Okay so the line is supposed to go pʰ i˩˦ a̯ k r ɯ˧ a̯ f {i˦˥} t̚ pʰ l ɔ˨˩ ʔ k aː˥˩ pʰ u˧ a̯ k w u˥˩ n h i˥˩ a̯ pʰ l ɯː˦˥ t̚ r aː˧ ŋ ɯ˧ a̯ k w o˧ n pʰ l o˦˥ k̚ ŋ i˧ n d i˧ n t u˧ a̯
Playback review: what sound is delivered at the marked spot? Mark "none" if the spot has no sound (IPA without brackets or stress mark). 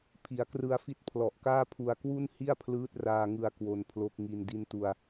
i˦˥